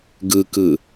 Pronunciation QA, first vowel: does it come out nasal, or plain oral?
oral